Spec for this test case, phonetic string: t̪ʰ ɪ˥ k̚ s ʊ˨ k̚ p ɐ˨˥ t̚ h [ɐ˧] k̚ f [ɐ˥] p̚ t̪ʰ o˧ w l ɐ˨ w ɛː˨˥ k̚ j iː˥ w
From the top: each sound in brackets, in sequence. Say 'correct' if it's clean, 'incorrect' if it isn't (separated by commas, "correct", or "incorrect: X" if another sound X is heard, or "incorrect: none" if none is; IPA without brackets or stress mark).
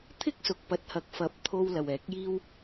incorrect: ɐ˨˥, incorrect: ɐ˨˥